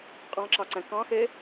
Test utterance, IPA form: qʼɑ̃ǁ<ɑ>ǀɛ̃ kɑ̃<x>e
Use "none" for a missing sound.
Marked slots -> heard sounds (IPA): ɑ, x

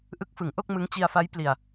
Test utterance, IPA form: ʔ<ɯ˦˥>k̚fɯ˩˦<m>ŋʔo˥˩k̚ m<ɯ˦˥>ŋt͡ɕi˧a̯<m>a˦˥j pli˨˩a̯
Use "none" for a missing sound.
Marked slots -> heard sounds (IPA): ɯ˦˥, none, ɯ˦˥, f

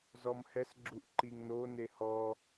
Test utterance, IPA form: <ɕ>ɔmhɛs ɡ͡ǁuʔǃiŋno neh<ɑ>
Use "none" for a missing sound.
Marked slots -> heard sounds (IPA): z, ɔ

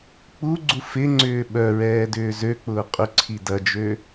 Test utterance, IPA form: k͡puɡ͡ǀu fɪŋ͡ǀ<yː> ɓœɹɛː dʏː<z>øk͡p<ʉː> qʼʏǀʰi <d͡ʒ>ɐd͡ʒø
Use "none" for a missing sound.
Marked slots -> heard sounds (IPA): ʏː, z, ʊː, d

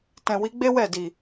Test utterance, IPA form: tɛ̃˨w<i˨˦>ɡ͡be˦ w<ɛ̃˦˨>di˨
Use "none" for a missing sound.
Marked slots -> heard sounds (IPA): i˨˦, ɛ˦˨

